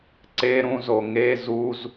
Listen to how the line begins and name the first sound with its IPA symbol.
ǀ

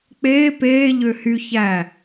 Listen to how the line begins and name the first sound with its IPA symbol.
k͡p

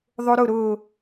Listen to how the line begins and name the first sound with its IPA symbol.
ðˤ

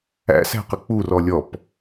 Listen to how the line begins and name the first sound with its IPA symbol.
æ̰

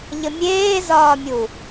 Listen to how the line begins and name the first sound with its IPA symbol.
ʎ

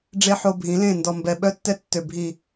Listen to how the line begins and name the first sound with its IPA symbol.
ɖ͡ʐ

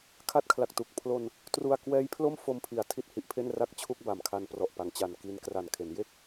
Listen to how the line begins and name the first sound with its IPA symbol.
kʰ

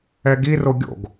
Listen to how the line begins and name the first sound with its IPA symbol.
ɛ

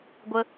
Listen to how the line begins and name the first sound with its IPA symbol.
ɡʷ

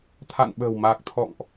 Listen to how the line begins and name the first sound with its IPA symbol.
t̪ʰ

